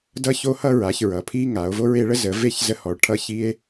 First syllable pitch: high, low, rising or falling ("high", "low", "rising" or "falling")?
high